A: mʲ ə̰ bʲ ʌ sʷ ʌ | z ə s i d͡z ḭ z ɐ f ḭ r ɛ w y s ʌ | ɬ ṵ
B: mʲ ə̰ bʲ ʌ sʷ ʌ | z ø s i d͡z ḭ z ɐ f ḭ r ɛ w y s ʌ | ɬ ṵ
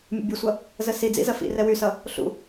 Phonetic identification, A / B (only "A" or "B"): A